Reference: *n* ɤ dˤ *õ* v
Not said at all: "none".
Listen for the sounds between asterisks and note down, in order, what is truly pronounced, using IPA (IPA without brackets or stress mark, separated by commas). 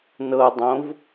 n, õ